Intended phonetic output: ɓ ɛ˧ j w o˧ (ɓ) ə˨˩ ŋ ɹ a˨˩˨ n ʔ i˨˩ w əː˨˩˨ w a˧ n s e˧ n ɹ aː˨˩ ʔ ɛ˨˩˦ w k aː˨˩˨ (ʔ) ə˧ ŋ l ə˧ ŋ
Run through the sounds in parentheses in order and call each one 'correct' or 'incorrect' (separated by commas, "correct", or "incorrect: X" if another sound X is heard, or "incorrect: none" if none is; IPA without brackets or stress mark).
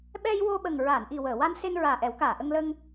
correct, correct